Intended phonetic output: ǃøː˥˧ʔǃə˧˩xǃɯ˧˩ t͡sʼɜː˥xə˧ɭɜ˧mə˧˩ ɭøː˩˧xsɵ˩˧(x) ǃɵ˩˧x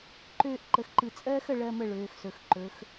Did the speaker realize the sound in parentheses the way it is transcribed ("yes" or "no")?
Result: yes